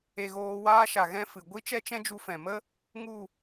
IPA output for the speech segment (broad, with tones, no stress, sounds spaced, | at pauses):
e˧ ɣ oː˧ w aː˦ ʃ a˨ ɣ ɛ̃˦ f ɨ˨ ɡʷ i˦ t͡ʃ ɛ˦ t͡ʃ ɛ̃˦ d͡ʒ u˧ f ɛ̃˨ m ə˦ | ŋ u˦˨